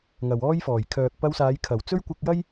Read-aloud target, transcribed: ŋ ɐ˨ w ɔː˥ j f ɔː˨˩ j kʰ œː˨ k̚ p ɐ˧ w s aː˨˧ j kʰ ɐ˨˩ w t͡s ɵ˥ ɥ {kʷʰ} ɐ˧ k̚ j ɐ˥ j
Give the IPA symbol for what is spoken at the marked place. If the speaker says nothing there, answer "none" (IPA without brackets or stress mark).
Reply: kʷ